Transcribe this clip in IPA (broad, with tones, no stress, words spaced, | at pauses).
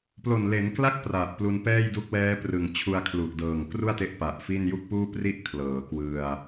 plo˨˩nle˩˦nkla˥˩k̚ pra˨˩ʔplu˧n pɛː˥˩jdu˦˥k̚wɛː˦˥prɯ˨˩ŋ t͡ɕʰu˧a̯kʰlu˨˩ʔdɤː˨˩ŋ kru˥˩a̯te˦˥ʔ pa˨˩ʔfi˥˩n ju˥˩k̚puː˥˩pri˥˩ʔ kʰlɤː˩˦kwɯ˧a̯